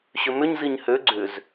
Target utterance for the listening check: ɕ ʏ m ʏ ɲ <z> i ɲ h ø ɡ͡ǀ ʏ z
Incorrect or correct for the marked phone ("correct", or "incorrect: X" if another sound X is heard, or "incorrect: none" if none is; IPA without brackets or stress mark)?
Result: correct